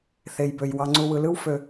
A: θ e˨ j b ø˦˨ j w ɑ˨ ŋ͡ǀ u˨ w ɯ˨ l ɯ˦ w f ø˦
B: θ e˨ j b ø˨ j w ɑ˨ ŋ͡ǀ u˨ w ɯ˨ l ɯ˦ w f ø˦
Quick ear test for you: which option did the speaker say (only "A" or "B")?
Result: B